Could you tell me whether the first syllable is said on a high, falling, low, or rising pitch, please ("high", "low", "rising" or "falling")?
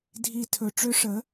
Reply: low